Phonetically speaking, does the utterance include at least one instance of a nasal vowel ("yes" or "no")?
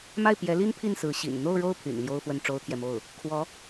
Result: no